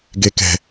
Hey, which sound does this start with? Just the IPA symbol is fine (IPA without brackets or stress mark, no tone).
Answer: ɡ